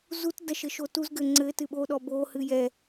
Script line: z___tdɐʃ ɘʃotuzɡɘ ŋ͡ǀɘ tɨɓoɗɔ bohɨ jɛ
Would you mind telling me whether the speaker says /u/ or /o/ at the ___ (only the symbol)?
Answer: u